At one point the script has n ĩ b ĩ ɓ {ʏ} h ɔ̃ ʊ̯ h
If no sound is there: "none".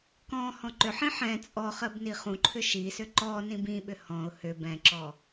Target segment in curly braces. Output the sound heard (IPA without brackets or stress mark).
ʏ